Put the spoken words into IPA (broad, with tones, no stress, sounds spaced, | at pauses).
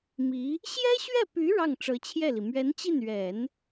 m i˧˥ | ɕ j ɛ˥ ɕ ɥ ɛ˥˩ p y˧˥ ɻ ɑ˥˩ ŋ ʈ͡ʂ ɤ˧˥ t͡ɕʰ j ɛ˥˩ l i˩ m ɥ ɛ˧˥ n t͡ɕ i˥˩ n ɥ ɛ˨˩˦ n